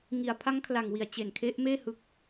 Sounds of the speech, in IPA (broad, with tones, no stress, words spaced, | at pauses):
ŋi˩˦a̯ pʰa˦˥ŋkʰla˨˩ŋwi˨˩a̯ t͡ɕe˨˩n kʰe˦˥ʔmeː˥˩ hɯ˦˥k̚